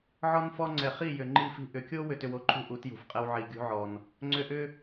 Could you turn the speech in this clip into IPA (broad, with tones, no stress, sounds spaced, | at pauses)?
ʕ ɔ˦ n f ɔ˦ ŋ͡ǀ ɛ˨ χ i˦˨ j ʏ˨ ŋ͡ǃ i˦˨ f i̤˦ ʔ ʏ˨ kʲ o˦ w ʏ˧ t ʏ˧ w o˦ ǃʰ ṳ˦ ʔ u˨˦ t j ṳ˨ f qʼ ɛ˦ w ʕ i˨ ɡʲ ṳ˦ ʕ ɔ˨ n | ŋ͡ǀ ʏ˧ ʔ ʏ˦